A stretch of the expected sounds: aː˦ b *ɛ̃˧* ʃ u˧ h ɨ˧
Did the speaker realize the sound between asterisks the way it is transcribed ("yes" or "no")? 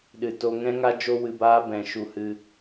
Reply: yes